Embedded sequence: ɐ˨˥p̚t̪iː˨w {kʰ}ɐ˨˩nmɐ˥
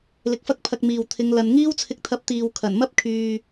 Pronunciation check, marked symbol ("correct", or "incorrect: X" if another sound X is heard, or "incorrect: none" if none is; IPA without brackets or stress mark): correct